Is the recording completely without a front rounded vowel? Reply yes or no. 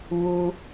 yes